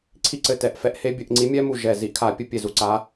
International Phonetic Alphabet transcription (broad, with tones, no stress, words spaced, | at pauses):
ǀʰi˦˥ǀɘ˧˩tɛ˧˩ʔ fɛ˧˩ʔhe˦˥bʲɘ˧˩˧ʔ ŋ͡ǀi˨˦mʲɛ˦˥mu˧˩ ʒɛ˧˩ zi˧˩˧ʔkʰa˧˩˧pʲɘ˧˩˧ pʲe˧˩zu˨˦ǀa˨˦